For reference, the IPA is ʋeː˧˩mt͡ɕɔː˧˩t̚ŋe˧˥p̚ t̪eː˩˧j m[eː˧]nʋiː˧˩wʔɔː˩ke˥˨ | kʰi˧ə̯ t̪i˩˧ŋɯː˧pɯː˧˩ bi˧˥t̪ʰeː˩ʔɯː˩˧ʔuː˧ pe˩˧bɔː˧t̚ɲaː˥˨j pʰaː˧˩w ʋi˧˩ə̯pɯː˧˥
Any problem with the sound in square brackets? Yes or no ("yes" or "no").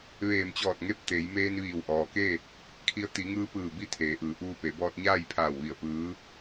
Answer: no